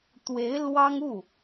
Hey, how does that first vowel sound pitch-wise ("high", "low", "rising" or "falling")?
rising